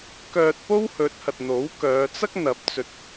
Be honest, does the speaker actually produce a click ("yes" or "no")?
no